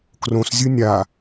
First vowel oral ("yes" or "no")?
no